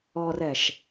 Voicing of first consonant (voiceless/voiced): voiced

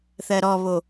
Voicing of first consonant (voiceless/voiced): voiceless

